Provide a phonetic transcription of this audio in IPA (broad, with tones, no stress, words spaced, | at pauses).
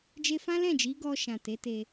d͡ʒe˧fã˦lɛ̃˦˨d͡ʒi˨˦ ɡɔ˧ ʃã˨te˨˦te˧